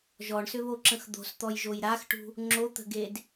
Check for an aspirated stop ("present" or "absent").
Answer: absent